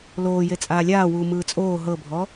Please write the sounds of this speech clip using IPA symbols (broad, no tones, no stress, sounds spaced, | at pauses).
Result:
l oː j e t͡sʼ aː lʲ aː w uː m ɯː t͡sʼ oː ɦ ɤ bʱ ɔ